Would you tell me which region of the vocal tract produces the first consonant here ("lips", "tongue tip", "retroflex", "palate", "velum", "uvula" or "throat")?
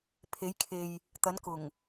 lips